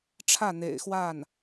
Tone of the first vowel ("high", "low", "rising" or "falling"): falling